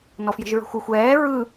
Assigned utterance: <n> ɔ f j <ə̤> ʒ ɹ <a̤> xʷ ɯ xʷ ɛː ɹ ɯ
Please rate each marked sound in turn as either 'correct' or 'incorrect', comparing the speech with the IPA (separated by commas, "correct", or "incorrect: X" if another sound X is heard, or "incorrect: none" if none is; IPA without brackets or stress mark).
correct, correct, incorrect: ə̤